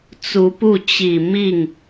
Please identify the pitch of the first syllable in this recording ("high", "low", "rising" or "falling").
rising